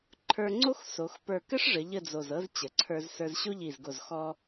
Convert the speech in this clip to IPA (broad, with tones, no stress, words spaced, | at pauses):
ǃʰə˞˧ŋ͡ǀo˥x so˩˧x pə˞˧˩kɘ˥ʂʐə˩˧ ʎə˥˧d͡zo˧˩zɤ˥z t͡ɕə˩˧ǀʰə˞˧zsə˞˧z ɕo˥ʎi˧˩zɡo˧˩z xɔ˧